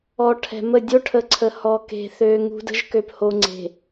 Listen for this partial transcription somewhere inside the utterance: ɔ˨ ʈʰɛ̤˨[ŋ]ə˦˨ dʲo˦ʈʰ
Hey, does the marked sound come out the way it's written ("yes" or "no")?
no